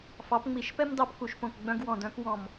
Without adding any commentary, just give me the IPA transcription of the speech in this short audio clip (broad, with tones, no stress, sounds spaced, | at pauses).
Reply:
f ɑ˩˥ p ŋ͡m i˧˩ ʃ p ɛ˦ m d ɑ˧˩ p k u˧˩ ʃ p õ˧˩ k ɡ͡b œ̃˦ ɡ w ɔ̃˧˩ d œ̃˦ k w ɔ̃˧˩ m